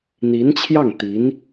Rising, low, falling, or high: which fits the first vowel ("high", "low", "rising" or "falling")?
rising